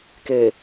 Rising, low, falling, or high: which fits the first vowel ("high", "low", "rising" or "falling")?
low